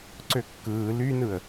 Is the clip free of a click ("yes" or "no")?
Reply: no